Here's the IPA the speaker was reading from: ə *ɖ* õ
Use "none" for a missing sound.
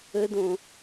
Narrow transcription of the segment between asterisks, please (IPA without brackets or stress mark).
d